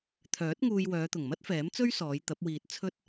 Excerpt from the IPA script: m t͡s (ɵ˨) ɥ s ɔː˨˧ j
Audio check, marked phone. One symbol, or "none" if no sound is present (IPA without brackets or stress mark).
ɵ˥